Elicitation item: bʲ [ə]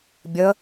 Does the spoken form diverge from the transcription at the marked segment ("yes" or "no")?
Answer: no